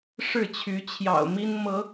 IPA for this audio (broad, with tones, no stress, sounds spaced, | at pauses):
ʂ ɻ̩˥˨ t͡ɕʰ y˨˦ t͡ɕʰ j ɑ̰˨˩ ʊ̯ m i˦ n m ɤ˨˦